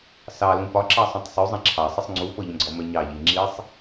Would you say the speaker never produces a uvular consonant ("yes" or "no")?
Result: yes